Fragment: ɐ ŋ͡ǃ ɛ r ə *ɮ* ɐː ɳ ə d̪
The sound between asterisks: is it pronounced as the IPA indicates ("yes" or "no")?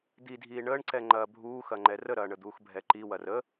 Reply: no